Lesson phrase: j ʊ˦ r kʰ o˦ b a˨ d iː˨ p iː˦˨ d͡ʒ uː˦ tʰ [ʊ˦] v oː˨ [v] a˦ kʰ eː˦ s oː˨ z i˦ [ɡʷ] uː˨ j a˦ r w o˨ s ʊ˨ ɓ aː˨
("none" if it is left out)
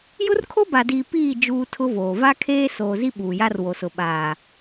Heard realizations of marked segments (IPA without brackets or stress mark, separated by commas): ʊ˦, v, ɓ